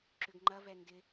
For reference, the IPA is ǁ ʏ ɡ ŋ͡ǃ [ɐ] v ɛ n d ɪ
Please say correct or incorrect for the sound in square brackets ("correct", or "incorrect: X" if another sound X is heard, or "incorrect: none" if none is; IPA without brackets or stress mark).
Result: correct